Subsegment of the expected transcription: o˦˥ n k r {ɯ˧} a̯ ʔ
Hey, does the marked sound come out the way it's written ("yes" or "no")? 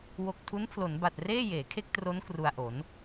no